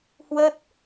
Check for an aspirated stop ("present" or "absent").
absent